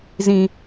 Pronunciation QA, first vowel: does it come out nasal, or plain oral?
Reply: nasal